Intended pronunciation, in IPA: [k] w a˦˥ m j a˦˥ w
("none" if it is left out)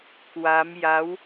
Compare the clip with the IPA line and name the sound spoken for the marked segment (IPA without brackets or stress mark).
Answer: k